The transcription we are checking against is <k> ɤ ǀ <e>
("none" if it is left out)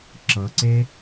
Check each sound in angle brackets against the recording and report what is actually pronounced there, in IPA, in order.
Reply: ǁ, e

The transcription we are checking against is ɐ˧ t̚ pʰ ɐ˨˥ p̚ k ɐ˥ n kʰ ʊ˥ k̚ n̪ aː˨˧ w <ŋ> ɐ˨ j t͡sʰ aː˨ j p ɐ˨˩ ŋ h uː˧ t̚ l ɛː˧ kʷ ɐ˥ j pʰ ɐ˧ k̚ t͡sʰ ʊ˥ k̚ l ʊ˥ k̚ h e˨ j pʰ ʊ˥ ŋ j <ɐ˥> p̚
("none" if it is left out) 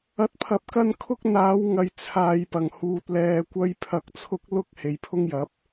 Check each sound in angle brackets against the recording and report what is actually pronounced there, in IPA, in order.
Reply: ŋ, ɐ˨˥

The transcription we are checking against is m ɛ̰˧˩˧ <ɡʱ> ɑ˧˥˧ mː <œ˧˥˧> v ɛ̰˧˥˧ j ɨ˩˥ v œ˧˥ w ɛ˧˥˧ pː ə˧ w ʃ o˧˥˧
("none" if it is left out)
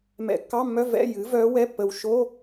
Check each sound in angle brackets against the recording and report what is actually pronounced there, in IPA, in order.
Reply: kː, œ˧˥˧

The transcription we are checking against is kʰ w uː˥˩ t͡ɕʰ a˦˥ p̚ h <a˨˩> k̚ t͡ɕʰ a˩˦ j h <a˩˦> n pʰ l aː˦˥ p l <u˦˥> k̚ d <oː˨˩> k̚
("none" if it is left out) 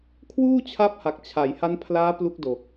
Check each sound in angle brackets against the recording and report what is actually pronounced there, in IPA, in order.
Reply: a˨˩, a˦˥, u˦˥, o˨˩

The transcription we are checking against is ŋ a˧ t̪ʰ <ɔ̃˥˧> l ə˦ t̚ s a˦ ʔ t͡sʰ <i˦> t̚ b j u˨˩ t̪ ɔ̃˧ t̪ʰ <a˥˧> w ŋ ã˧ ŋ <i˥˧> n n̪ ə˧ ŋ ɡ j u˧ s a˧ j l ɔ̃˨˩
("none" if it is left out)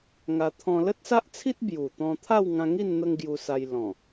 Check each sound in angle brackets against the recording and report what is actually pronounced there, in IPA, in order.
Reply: ɔ̃˧, i˦, a˥˧, i˥˧

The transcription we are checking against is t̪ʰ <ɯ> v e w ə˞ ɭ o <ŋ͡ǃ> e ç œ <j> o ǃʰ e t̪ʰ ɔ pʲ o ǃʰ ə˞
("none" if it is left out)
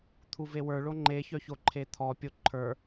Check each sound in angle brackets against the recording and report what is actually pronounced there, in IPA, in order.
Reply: u, ŋ͡ǃ, ç

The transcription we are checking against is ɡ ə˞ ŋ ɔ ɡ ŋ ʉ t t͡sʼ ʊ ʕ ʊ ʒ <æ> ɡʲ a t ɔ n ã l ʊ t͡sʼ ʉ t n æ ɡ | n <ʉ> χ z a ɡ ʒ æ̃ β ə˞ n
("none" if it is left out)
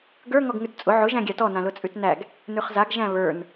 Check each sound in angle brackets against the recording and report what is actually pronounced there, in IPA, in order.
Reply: æ̃, ʉ

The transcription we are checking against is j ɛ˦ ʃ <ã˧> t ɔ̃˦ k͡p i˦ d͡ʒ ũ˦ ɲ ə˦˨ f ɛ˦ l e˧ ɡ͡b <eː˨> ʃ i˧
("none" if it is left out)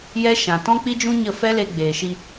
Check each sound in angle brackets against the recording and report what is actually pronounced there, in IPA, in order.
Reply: ã˨, eː˨

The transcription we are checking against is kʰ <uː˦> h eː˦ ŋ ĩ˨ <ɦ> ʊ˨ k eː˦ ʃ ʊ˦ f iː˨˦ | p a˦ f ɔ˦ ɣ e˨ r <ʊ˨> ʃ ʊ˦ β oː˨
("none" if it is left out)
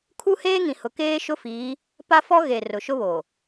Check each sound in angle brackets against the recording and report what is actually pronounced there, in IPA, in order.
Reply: u˦, h, ʊ˨

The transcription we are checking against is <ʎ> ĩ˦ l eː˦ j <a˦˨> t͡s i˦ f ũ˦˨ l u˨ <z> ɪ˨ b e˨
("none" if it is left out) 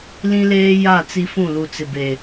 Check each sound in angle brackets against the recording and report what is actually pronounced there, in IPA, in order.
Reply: l, a˦˨, t͡s

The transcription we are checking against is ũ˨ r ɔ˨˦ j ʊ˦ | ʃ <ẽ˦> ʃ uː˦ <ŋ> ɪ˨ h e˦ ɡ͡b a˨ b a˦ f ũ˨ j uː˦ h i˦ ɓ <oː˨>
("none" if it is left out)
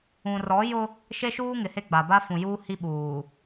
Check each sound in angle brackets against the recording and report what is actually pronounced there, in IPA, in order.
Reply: e˦, ŋ, uː˨

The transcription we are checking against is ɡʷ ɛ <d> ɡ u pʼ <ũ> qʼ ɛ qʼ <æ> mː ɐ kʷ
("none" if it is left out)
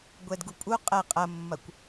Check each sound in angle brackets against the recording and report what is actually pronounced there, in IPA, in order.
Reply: d, u, ɐ

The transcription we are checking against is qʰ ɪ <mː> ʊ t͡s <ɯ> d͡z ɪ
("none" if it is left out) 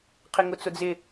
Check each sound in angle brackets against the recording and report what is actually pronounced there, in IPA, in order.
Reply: ŋ, ʊ

